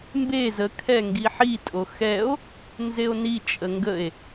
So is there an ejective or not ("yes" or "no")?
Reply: yes